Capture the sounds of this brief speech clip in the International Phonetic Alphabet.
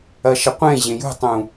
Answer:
ɐ ʃ ɐ qʷ ẽ ʑ ẽ j ṳ tˤ ũ

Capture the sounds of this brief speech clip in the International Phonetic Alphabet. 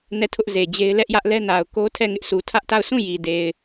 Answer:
n ɛ˦˨ tʰ ʊ˦ ʔ z e˨ d͡ʑ e˦ ɪ̯ l ɛ˦ ʔ j ä˦ ʔ l ɛ˦ n a˨ ʊ̯ k o˦ tʰ ɛ˦˨ ŋ ɪ˦ ʔ s u˨ tʰ ä˦ ʔ t a˦˨ ʊ̯ s ũ˦˨ j i˨ d e˨ ɪ̯

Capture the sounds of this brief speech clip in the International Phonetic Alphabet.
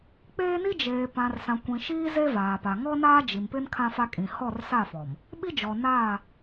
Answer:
k͡p eː˦ n i˦ d͡ʒ eː˨ p ã˨ r s ã˨ kʷ ĩ˨ ʃ iː˦ z e˦ v aː˨ p a˨ ŋ ɔ˦ n aː˦ d͡ʒ i˨ m p ɪ˦ n kʰ ã˦ f a˦ kʼ ĩ˨ h ɔ˦˨ r s a˦˨ f ɔ˨ m | ɓ i˦ d͡ʒ ɔ˨ n aː˦˨

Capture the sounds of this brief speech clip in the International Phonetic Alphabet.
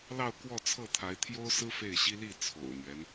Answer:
l ɑ˥˧ ʊ̯ k w ɔ˥˧ t͡sʰ ɤ˥˩ t̪ʰ a˧˥ ɪ̯ t̪ʰ j o˥ ʊ̯ s ɹ̩˥ f e˥˩ ɪ̯ ɕ i˥ l i˥˩ t͡sʰ o̰˨˩ ʊ̯ n̪ ɥ ɛ˦ n

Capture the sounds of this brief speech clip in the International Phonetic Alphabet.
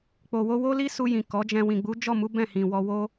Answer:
k͡p o˨ w o˧ w o˦ l i˦ s u˧ j ĩ˨ k ɔ˨˦ d͡ʒ ɛ̃˧ w ĩ˨ ɡ͡b u˨˦ d͡ʒ ɔ˦˨ m u˨˦ b ɛ̃˦˨ h ĩ˨ w ɔ˧ w o˦

